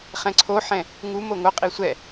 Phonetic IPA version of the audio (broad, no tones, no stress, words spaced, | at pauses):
χɛ̃ǀʰoħɛ̃ | ŋu moŋoqʼi sʷɛ